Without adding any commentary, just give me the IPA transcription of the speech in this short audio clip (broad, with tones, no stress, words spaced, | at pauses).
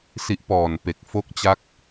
si˦˥ʔpɔː˨˩n pe˨˩k̚ fo˦˥k̚t͡ɕa˦˥k̚